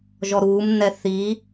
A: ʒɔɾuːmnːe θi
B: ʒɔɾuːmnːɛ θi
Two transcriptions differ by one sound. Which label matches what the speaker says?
B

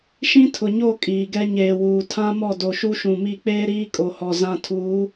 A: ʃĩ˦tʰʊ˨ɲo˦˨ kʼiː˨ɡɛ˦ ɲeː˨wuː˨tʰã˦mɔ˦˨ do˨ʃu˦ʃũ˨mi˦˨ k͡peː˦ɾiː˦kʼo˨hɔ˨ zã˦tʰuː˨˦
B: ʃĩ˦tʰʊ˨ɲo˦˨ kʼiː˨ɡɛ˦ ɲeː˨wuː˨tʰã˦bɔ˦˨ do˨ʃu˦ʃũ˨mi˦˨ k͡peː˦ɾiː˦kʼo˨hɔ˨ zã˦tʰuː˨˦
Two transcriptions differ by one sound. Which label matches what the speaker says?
A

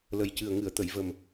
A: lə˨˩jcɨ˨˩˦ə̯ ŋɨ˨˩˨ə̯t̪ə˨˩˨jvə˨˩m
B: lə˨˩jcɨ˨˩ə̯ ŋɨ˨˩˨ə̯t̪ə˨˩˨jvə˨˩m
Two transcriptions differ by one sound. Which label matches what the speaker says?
B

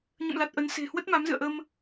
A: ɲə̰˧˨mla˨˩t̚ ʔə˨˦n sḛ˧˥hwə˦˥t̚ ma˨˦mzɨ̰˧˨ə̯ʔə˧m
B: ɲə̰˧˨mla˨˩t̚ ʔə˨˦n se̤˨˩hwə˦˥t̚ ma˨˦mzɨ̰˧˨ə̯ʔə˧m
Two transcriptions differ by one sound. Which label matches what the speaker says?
B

